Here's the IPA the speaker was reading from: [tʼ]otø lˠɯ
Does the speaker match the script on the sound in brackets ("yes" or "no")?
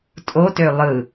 yes